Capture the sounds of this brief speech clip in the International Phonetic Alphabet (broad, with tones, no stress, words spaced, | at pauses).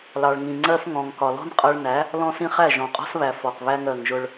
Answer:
lɑ˨ɭŋĩ˨ŋ͡ǀɜ˦f ŋɔ̃˨ŋkɒ˨lɔ̤˦n qʼʌ˦ɭ næ˨˦ | lɔ̃˦sĩ˦χæ˦˨ ʒɔ̃˨qʼɔ̤˦sβæ˨ fɔ˨q βæ˦ŋɜ˨ŋʒʊ˦ɭ